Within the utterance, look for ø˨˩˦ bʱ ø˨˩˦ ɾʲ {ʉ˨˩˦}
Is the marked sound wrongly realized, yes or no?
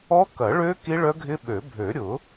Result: yes